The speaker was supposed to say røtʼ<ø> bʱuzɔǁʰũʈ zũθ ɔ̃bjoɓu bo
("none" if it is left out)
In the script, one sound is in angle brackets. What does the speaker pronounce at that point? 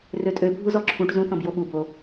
ø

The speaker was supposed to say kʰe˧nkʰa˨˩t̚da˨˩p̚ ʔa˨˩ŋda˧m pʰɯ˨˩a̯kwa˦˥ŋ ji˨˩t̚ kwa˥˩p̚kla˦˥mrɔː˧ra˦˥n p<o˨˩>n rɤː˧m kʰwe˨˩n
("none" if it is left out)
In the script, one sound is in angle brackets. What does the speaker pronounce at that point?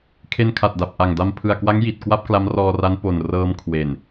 o˨˩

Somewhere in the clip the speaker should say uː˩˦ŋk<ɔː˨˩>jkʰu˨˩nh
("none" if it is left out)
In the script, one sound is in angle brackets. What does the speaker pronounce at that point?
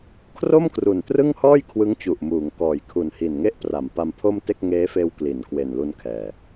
ɔː˨˩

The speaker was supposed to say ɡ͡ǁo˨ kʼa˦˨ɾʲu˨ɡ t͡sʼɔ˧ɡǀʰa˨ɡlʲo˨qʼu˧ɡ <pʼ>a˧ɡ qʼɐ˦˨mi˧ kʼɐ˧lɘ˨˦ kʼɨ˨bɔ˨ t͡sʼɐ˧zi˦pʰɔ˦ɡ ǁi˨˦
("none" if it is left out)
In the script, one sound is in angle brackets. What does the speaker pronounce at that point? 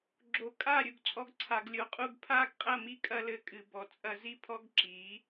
pʰ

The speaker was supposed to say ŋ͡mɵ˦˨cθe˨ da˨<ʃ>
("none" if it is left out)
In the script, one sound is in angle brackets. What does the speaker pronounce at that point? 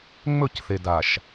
ʃ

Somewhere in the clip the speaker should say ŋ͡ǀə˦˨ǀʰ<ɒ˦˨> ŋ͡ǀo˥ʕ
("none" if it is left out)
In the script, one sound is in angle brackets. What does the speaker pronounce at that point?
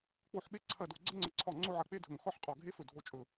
ɒ˦˨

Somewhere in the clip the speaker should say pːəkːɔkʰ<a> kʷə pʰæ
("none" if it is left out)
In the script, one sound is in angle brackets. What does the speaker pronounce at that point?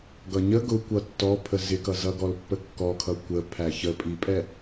ʌ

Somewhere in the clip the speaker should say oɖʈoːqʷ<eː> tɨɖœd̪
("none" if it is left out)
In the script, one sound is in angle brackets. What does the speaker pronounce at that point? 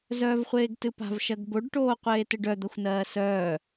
eː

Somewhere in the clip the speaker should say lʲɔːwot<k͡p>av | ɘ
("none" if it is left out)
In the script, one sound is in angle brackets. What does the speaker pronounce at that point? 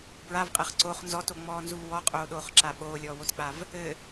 k͡p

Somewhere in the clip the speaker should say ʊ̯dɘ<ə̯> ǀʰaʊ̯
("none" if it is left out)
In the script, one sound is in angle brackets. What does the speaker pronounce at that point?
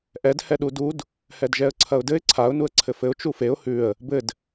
ɪ̯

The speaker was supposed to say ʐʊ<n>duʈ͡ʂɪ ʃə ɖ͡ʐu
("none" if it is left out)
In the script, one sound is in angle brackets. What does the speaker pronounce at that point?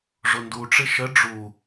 n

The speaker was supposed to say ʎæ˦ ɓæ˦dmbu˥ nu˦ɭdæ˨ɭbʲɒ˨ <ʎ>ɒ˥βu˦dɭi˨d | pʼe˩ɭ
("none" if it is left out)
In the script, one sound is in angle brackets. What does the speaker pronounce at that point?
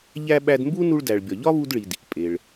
ʎ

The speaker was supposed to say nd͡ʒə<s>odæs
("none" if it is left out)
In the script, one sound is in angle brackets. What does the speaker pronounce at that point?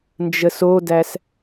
s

